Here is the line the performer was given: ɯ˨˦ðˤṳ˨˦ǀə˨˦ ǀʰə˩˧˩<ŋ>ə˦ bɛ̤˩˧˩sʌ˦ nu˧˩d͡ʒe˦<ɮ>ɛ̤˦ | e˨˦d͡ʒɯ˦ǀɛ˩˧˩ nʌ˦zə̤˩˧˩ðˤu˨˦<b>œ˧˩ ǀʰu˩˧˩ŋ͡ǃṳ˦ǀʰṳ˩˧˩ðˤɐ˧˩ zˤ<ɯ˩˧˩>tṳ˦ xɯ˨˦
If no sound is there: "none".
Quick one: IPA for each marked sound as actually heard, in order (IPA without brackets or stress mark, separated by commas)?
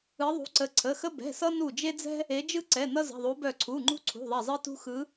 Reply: x, d͡z, b, ɯ˦